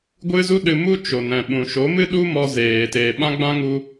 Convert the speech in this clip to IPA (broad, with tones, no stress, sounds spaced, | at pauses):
ɡʷ ɨ˦ z u˦ ɗ ɨ˧ m u˦ t͡ʃ o˨ n ɛ̃˨ ɓ ũ˨ ʃ o˨˦ m ɨ˦ ɗ u˦ m ɔ˧ z eː˨ t eː˨ ɓ ã˦ ɡ͡b ã˦ ŋ u˧